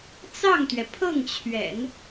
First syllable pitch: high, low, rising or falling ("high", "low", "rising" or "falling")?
falling